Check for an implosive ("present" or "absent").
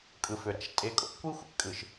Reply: absent